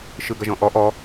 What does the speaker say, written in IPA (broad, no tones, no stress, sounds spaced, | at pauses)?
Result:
ʃ ɯ ɡ ɐ ʒ ɔ̃ ʔ ɔ ʔ ɔ